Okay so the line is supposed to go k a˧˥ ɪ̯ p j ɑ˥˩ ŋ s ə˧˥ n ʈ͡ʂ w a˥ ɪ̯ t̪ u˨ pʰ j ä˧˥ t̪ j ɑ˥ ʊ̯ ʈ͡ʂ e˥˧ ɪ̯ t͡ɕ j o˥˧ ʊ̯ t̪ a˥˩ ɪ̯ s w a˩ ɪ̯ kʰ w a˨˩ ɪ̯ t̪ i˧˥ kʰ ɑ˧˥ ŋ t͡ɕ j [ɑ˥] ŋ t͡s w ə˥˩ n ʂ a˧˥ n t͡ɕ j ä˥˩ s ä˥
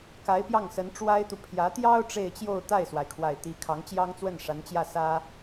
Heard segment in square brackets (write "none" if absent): ɑ˥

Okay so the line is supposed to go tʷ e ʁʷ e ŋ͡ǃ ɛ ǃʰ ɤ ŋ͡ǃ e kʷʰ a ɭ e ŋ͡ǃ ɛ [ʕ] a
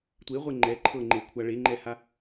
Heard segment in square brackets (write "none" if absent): h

